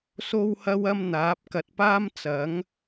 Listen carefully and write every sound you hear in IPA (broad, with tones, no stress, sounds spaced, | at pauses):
s o˥ w h ɐ˥ w ɐ˥ m n̪ aː˨˥ p̚ k ɐ˨ t̚ p aː˥ m t͡s ɐ˨˥ ŋ